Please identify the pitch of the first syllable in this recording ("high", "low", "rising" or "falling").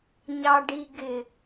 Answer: low